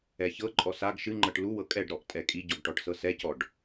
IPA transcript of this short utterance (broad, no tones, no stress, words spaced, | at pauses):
ɛçɤǃʼɔ saɡ ʃɨŋ͡ǃɤʈ luwɤ kʼɛɖɾɔʔ tʼɛkʼiɟɔɡ ʈɔʈsɤsɛcɔɖ